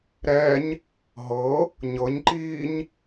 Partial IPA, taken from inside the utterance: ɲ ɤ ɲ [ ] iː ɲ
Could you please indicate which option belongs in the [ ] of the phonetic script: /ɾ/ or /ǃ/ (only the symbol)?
ǃ